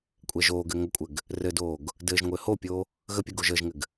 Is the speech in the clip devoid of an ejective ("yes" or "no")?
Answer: no